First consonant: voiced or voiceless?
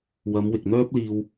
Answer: voiced